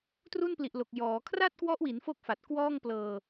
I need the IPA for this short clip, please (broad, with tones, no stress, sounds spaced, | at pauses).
t r u˥˩ n p l i˨˩ ʔ l o˨˩ k̚ j ɔː˩˦ kʰ r a˥˩ t̚ k w ɔ˦˥ ʔ w i˩˦ n f o˥˩ k̚ f a˨˩ t̚ k w ɔː˥˩ ŋ p l ɤː˧